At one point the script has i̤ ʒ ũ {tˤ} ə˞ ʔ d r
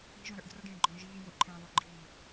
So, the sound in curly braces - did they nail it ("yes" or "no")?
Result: no